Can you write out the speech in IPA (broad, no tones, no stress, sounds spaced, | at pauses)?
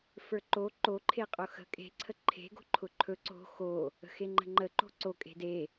f ə˞ ǃ o ǃ o ǃʰ e qʼ ʊ x ə̤ kʼ e̤ ǀʰ ə ǃʰ e̤ ɡ o̤ ǃʰ ʊ ǃʰ ɵ ǀ o̤ x o | ə̤ x e ŋ͡ǃ ə̤ ŋ͡ǃ ə ǃ o̤ ǀ o kʼ e̤ d e